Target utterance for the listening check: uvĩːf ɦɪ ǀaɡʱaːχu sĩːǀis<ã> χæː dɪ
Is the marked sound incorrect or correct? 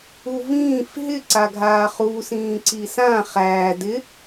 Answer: correct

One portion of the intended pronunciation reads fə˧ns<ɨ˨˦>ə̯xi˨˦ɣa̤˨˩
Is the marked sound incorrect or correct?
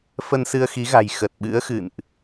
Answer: incorrect: ɨ˧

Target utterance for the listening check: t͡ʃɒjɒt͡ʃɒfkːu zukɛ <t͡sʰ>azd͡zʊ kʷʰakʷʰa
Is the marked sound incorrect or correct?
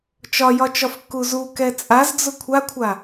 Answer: incorrect: t͡sʼ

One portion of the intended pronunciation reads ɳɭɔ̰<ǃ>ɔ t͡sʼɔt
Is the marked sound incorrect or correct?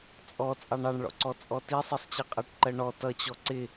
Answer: incorrect: ǀ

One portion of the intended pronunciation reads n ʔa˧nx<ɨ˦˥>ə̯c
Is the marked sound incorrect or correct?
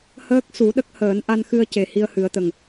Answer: incorrect: ɨ˧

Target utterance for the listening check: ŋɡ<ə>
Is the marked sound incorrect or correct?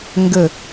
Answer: correct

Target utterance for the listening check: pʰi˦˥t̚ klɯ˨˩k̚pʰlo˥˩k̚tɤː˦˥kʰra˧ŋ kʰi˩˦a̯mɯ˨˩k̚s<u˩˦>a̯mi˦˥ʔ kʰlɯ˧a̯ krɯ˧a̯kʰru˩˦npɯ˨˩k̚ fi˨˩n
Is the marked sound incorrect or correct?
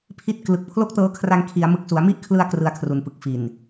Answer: correct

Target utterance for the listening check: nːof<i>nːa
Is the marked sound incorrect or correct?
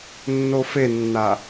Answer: incorrect: e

